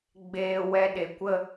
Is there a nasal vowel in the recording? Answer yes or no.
no